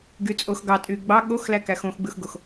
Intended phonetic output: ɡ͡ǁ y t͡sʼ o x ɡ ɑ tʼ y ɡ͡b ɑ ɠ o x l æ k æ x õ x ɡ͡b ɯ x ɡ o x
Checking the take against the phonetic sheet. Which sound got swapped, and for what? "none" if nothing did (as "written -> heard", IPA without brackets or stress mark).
ɡ͡ǁ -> ɡ